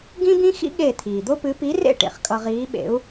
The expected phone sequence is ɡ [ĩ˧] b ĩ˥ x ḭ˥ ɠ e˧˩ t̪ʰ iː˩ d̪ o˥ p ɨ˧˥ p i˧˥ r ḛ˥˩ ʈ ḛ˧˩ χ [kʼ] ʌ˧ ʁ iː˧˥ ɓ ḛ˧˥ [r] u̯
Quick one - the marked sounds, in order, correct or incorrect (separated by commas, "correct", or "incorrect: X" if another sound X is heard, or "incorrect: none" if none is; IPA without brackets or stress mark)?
incorrect: ĩ˥, correct, incorrect: none